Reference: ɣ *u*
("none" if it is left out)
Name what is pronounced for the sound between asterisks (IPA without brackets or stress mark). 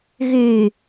y